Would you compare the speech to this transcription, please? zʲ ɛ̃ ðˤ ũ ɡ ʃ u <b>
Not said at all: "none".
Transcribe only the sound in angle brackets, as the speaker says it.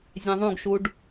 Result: ɖ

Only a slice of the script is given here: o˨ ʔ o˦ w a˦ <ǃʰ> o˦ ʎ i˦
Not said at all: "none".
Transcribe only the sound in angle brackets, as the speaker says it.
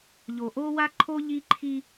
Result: ǃʰ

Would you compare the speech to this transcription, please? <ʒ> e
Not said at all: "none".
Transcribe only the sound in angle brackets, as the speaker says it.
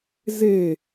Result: z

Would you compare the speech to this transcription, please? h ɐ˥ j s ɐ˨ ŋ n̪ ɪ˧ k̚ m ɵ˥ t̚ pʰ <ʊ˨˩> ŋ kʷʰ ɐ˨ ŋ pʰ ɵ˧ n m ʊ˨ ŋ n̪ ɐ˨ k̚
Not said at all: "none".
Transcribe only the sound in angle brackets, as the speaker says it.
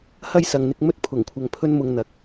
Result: ʊ˨˩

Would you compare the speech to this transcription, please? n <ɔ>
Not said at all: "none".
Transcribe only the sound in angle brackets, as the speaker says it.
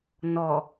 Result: ɔ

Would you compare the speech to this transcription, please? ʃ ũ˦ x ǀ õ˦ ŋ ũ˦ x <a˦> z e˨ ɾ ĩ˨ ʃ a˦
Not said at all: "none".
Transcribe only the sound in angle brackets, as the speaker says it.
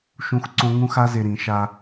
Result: a˦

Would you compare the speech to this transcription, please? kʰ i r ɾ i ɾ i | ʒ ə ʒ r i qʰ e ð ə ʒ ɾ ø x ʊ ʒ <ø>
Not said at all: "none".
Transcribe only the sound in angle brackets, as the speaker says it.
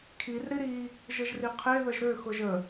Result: ə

